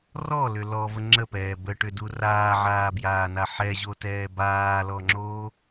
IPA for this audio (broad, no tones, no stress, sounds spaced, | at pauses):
r ɔ l ʏ l ɔ v ə ŋ͡ǁ ə p ɛː b ə ʈ ʏ d u r aː ʕ aː b j aː n a ħ ɛ ʑ o t ɛː b aː l ɔ ŋ͡ǁ oː